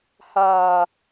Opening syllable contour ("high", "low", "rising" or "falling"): low